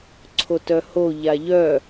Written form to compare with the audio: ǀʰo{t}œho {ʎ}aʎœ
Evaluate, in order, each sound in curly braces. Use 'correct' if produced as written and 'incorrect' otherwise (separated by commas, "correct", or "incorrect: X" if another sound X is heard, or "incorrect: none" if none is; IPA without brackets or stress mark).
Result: correct, correct